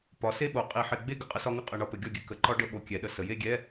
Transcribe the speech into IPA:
p ɒ˩˥ s e˥˨ ɓ o˩˥ qʼ i˧˩˧ ħ e˧˩˧ ɡ͡b e˥˨ ɡ ə˥˨ qʼ ə˦˥ s ɒ˦˥ ŋ ɘ˥˨ qʼ ə˧˩˧ ɳ ɒ˩˥ p ɘ˩˥ ɡʲ ɒ˥˨ ɡʲ ɘ˥˨ k ə˧˩˧ ǃ ɒ˦˥ ɖ ə˧˥˧ ɓ o˧˩˧ kʲ ɛ˩˥ ɗ ə˩˧ s ə˩˧ j e˥˨ ɡʲ ɛ˧˥˧

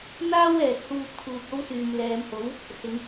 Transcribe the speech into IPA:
n̪ aː˥ w ɛː˨ k̚ h uː˧ p̚ kʰ uː˨ k̚ o˥ w s yː˨ m l ɛː˨˧ m h o˨˥ w | s ɪ˨˧ ŋ

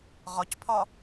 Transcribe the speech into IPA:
ʁ ɒ c pʰ ɒ

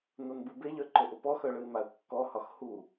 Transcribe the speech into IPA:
n ʊ n b ɯ b e ʎ œ ǃ ʊ ʔ ʊ p ɔ x œ ɭ ɯ ɪ̯ m a ʊ̯ kː ɔ h ɒ x h u

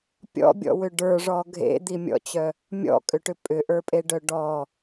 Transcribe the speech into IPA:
pʲ ɔ̰ bʲ ɔ̰ w ʏ ɖ ə˞ ʐ ɔ ɡʱ ḛ d̪ i mʲ ɔ̰ t͡ɕ œ | mʲ ɔ̰ kʼ ʏ ʈ ʏ pʼ ʏ ʔ ə˞ pʼ e ɖ œ ɖ ɔ

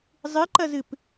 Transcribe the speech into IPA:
zˤ ɨ ǃ ɐ z ɨ p

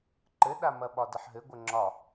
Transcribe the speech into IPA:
ǃ ɘ ɗ a m ɐ ɓ ɒ d ɐ ħ ɦ ɘ ɡʷ ə ŋ͡ǁ ɒ

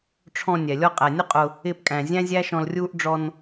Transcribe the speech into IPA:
ʈ͡ʂʰ ɔ̃˨ nʲ ɛ˨ lʲ ɔ˧ qʼ æ˨ nʲ ʊ˦ qʼ ʊ˧ | ɪː˧ p kʼ æ̃˨ zʲ æ̃˦ zʲ æ˦ ʃ ɔ̃˧ l rʲ uː˦ ʔ ɖ͡ʐ ɔ˧ n

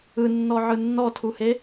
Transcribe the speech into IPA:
ɯ nː ɔ ʕ ɯ nː ɔ tʰ u h e

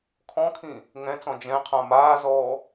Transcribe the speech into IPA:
kʰ ɔ̃ kʰ ĩ | ŋ ɛ̃ t͡s ɔ̃ d͡ʒ ɛ̃ qʰ ã m aː z ɔː

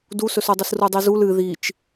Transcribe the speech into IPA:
d u s ɵ s u dˤ ɨ s r u dˤ i z u l ɨ ð i t͡ʃ

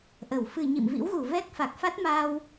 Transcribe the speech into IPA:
ʔ ə˧˩ w f ɨ˧˩ ɲ ḭ˧˨ m v ḭ˧˥ w ɣ u˧˩ v ɛ˦˥ k̚ f a˨˩ k̚ f a˦˥ t̚ m aː˧ w

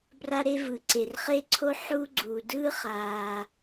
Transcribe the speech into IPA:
b r a˥ ɾ e˥ v ɯ˩ ǀ e˩ r χ e˥ ǀʰ o˥ ħ u˥ ɡ͡ǀ u˩ d ɯ˥ χ a˩

